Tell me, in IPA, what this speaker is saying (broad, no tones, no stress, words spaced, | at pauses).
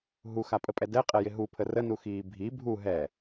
ɦuxapʼəpʼɛ dɛqʼɛjɪ ɦupʰə rənuxiː bʱi bʱu ɦɛ